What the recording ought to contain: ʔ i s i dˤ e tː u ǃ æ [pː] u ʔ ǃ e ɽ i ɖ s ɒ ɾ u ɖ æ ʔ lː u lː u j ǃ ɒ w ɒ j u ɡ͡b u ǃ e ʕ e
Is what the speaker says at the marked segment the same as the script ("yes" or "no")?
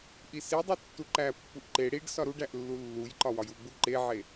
yes